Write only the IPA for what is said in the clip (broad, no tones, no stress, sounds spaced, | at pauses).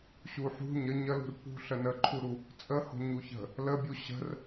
ɕ u ħ ṳ ɲ ə ɲ ə l ṳ r p ṳ ɬ ə n ə ǃʰ u ɾ u | t͡sʼ ə h o̤ ɲ u ç ə̤ | l ə bʲ u ɕ ə̤ r